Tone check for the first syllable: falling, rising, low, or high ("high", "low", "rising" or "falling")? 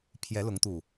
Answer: rising